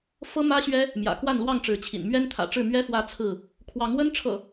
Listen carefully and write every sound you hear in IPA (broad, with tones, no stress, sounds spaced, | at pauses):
f ɤ˦ m ä˦ ɕ ɥ ɛ˦ | m j ä̰˨˩ k w a˥˨ n l w ɑ˥˨ ŋ ʈ͡ʂ ɻ̩˨˦ t͡ɕʰ ḭ˨˩ n m ɥ ɛ˦ n t̪ʰ ä̰˨˩ ʈ͡ʂ ɻ̩˥˨ m ɥ ɛ˦ f w ä˦ t͡sʰ ɹ̩˥˨ | kʰ w ɑ˨˦ ŋ w ə˦ n ʈ͡ʂʰ ɤ̰˨˩